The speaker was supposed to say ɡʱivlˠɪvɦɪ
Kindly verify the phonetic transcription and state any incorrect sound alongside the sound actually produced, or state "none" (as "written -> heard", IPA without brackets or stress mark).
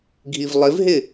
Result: none